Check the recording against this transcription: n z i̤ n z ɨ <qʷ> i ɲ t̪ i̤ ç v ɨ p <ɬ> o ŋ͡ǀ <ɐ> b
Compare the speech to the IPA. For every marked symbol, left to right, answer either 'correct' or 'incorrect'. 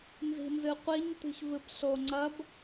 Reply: correct, correct, correct

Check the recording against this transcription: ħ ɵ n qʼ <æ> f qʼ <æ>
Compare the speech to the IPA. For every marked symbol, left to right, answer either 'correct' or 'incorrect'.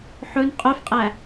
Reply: incorrect, correct

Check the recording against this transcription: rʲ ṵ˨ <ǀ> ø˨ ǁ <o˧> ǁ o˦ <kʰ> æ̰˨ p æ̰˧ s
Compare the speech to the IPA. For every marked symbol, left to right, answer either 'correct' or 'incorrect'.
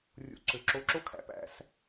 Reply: correct, correct, correct

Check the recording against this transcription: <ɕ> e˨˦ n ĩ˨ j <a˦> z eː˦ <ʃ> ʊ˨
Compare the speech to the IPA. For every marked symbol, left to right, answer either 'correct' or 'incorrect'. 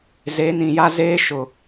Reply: incorrect, correct, correct

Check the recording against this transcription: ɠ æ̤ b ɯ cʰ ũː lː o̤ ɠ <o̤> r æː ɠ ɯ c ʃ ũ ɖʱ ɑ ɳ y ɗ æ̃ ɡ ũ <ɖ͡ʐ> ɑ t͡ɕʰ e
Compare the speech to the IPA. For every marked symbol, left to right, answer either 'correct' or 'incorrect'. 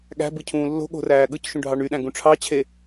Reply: correct, incorrect

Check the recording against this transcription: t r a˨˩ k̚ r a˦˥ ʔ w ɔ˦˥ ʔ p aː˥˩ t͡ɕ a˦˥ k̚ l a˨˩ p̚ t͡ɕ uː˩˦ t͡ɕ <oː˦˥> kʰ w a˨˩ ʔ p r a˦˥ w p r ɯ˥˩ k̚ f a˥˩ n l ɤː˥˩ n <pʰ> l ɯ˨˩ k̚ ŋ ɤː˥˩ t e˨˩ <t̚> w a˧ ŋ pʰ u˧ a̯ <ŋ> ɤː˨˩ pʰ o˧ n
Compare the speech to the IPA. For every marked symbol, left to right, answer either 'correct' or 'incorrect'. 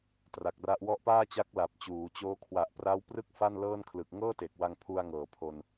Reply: correct, incorrect, incorrect, correct

